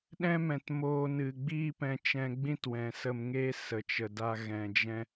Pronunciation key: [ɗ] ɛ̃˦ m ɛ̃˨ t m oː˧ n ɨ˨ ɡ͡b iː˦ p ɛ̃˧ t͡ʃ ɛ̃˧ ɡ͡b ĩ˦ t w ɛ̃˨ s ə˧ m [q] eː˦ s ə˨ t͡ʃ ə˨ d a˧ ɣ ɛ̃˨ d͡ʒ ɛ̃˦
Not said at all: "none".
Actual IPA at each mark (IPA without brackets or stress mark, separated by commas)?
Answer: ɗ, ŋ